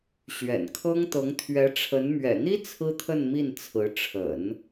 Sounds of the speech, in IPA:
ɕɥɛ̰˨˩nkʰɤ˥ŋt̪ɤ˧˥ŋ t̪ʰɥɛ˧˥ʈ͡ʂʰə˧˥n mɥɛ̰˨˩n̪i˥ t͡sʰɹ̩˥t̪ʰə˥˧nmi˥˩n t͡sʰɹ̩˧˥ ʈ͡ʂʰə̰˨˩˦n

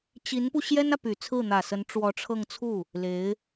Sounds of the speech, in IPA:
t͡ɕi˧˥npu˧ ɕjɛ˥nä˨ py˨˩t͡sʰɹ̩˥˩ n̪ä˨˩sə˧˥n ʈ͡ʂwɔ˧˥ʈ͡ʂʰɤ˥˧ŋ t͡sʰu˥˩ | le˧˥ɪ̯

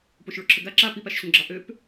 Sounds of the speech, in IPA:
poʃɭoǁʰəɡa ǁa pipaʃɕõɡ͡ǁɑ ʔøp

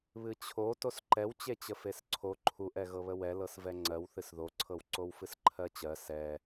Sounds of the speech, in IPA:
βɨt͡ɕʰo tosǃɛwt͡ɕe t͡ɕəfesǀʰo ǃʰuʔɛ ɣɤβəwɛlɤs vɛŋ͡ǀɜwθɨs ðoǀʰɤwǀow fɨsǃʰɜt͡ɕɜ sɛ

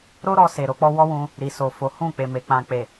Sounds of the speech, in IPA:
ɾo˦ɾɔ˧se˨ ɾo˧k͡pɔ˦ wɔ˦wũ˧ | ɾi˨so˨ fo˨˦ hũ˦˨k͡pe˨me˨ k͡pã˨k͡pe˨

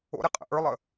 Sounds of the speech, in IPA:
o̰ɾe qʼə̰ʔə˞lˠə

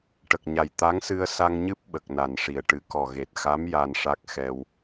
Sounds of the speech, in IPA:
ʈə˨˩k̚ɲa˨˩j t̪a˧˥ŋsɨ˧ə̯ sa˧ŋɲɨ˦˥p̚ ɓə˨˩k̚na˨˩nʂi˨˩ə̯ ʈɨ˨˩˨kɔ˨˩ɣe˨˩t̚xa˧˥m ja˧nʂa˦˥k̚ xɛ˧w

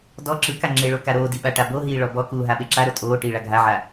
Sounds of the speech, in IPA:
dɔ ǁɯka ŋ͡ǁeɭo kaɾoːdi ɓaʈaboɦiː ɭɔbɔkuː ɦaɓeǁaɾo tʼoː ʈiːɭaɡʱaʕa

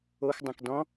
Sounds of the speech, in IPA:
oxdˤõk dɔ̃

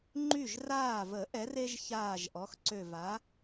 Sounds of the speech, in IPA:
ŋ͡ǃy˧˩ʒraː˧˩və˨˩˦ ʔɛ˩˥re˦ʒ çaː˧˩ʒ ʔɔ˩˥xǀø˧˩va˩˥

